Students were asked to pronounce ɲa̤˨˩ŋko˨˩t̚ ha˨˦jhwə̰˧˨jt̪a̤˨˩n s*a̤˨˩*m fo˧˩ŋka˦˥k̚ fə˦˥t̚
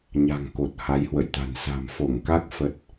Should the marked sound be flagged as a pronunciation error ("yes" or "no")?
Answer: no